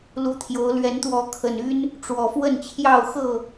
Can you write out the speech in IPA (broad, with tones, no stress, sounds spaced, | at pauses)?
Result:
l u˨˦ t̪ʰ j o˨˦ ʊ̯ l ɥ ɛ˨˦ n t̪ w ɔ˨˦ kʰ ə˨˩ n y˦ n | ʈ͡ʂ w ɔ˨˩ f w ə˥˨ n t͡ɕʰ j ɑ˥˨ ʊ̯ x ɤ˥˨